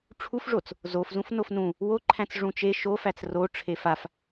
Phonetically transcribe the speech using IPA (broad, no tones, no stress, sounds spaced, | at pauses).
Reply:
ʈ͡ʂʰ u f ʐ o t͡s | z o f z ũ f n o f n ũ | w o ǃʰ æ̃ t͡s ʐ ũ t͡ʃ e ʃ o f æ t͡s r o ʈ͡ʂʰ e f a f